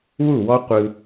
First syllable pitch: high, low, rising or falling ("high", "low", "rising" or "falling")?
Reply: falling